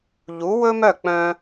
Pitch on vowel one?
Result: rising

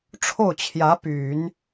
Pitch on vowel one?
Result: falling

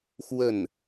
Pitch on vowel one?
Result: falling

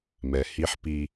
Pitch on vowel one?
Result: low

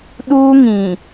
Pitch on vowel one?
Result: high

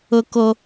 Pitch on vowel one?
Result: high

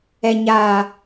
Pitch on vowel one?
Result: low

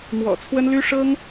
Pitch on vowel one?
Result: low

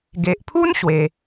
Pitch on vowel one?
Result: low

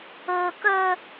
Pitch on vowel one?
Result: high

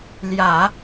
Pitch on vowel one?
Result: low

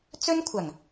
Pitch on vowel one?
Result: high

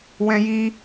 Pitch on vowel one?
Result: high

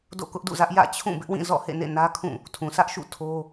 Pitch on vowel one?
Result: falling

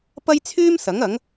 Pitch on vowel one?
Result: high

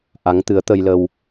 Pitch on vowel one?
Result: rising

